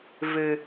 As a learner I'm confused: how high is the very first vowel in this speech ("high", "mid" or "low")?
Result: high